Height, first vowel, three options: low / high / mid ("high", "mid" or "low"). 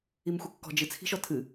high